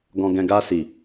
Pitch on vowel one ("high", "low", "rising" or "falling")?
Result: low